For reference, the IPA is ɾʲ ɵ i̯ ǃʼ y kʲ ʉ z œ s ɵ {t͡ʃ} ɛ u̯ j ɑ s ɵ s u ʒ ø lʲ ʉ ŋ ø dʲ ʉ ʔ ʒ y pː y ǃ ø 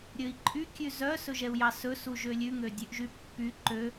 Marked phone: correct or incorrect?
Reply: incorrect